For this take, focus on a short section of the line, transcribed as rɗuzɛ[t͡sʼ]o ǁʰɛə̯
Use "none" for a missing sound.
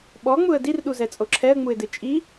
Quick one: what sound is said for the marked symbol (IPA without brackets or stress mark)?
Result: t͡sʼ